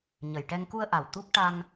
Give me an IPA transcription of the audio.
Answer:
ɲ ə˨˩ j ʈ ɛ˧ ŋ k u˧ ə̯ ʔ a˨˩ w t̪ u˦˥ k̚ ʈ a˧ ŋ

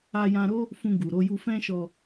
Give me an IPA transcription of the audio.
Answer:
a˧ j ã˧ ɾ o˦ | f ũ˧ ɡ u˨ ɾ o˧ j u˧ f ɛ̃˦ ʃ ɔ˧

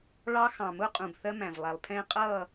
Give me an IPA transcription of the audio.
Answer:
ɭ ɑ˦ x ɑ̃˨ m ʊ˦ qʼ ũ˨ b θ ɜ˦ m æ̃˨ v lˠ æ˨ lˠ pʰ ɛ̃ː˦ qʼ ʌː˦˨

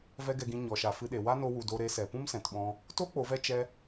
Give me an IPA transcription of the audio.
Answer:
v ɛ˦ ɡ ɛ˧ ɡ ĩ˧ ɲ ɔ˨ ʃ a˨ f ɨ˧ ɗ e˨ w a˦ n o˧ w u˨ d o˧ ɾ e˧ s ɛ˨ p ũ˦ m s ɛ̃˨ t ɓ ɔ̃˧ | t o˦ k͡p o˨˦ v ɛ˦ t͡ʃ ɛ˦

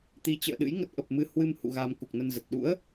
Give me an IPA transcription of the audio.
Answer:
t̪ i˨˦ t͡ɕ ə̰ː˧˨ ɗ ɨ̰˧˥ j ŋ ə˦˥ t̚ ʔ ə˨˩ p̚ m ɨ˧ h w ɨ˧ m h ṵ˧˨ ɣ a˧ m k u˨˩ k̚ n ə˧ n z ə˨˩ t̚ ɗ ṵ˧˥ ə̯

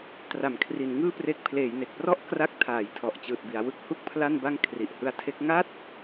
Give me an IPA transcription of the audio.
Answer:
t r a˩˦ m kʰ r i˩˦ n ŋ ɯː˥˩ p r e˦˥ k̚ pʰ l eː˩˦ j n e˨˩ k̚ p r ɔ˥˩ ʔ k r a˦˥ k̚ tʰ aː˩˦ j tʰ ɔ˨˩ ʔ t͡ɕ ɯː˨˩ t̚ b i˩˦ a̯ w ɯ˦˥ k̚ h u˥˩ k̚ pʰ l a˥˩ n b a˥˩ ŋ kʰ r i˨˩ ʔ h ɯ˦˥ a̯ tʰ e˦˥ k̚ ŋ a˥˩ t̚

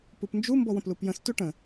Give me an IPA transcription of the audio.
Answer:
p u p n d͡ʒ u m b ɔ w ə̃ p l u p j ə̃ s t u ʈ ə̃

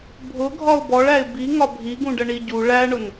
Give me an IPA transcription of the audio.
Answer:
bʱ ʊ ɡʱ ɒ ʊ̯ b ɔ ɭ æ ɪ̯ b i ŋ ɒ bʱ i ɡ ũ ɖ ə ɳ i ɟ u ɭ æ ɳ ʊ n

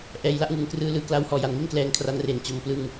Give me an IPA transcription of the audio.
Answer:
ʔ ɛː˨˩ j l a˦˥ ʔ ŋ ɯ˩˦ ŋ k r ɯː˧ l ɯː˧ k l a˦˥ w h ɔː˨˩ j a˨˩ n ŋ i˥˩ n k l ɛː˧ ŋ kʰ r a˧ n r e˨˩ n t͡ɕ o˧ m p l ɯ˧ ŋ

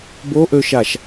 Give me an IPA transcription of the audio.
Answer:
b o ʔ ø ʃ a ʃ

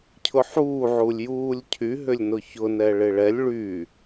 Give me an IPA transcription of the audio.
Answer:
cʰ ʊ ħ uː ʕ u lʲ j uː lʲ cʰ y ɦ ʏ lʲ n ʊ ç ʊ n ɛ ɭ ɪ ɭ ɛ lʲ ɭ y

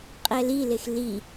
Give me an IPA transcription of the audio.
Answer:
qʼ ɛ l i l e x l i

